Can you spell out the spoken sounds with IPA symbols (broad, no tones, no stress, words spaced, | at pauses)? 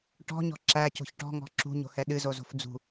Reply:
ʈɔ̤ɲɔ̤ ǁæco̤ç ʈɔ̤ŋɔ̤ ǁṳɲo̤hɛ ɗɨzozo̤f d͡zṳ